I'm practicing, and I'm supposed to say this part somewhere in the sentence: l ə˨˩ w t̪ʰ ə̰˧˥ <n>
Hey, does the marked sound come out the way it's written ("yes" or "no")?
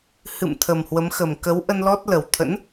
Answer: yes